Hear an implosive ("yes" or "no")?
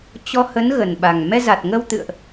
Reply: yes